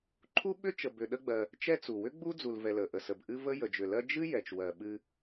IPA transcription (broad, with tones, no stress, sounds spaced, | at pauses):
ǃʰ u˥ ɓ ʏ˥ t͡ʃ ə˨ b ʏ˨ ɗ ə˦ ɡ͡b ɜ˨ | t͡ʃ ɛ˦ t͡s u˩ w ʏ˥ ɡ͡b u˥ d͡z u˨ l v ɛ˨ l ə˩ ʔ ə˨ s ə˩ b ʔ ɨ˦ v ə˥ j ə˨ d͡ʒ ʏ˨ l ɜ˥ d͡ʒ ɨ˥ j ɛ˩ t͡ʃ w ɜ˩ ɓ ɨ˦